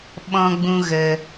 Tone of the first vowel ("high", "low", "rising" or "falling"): high